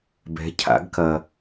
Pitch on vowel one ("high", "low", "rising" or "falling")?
rising